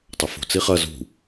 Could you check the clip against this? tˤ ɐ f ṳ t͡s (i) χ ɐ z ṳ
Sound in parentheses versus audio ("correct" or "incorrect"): correct